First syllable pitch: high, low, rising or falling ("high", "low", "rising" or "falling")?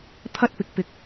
high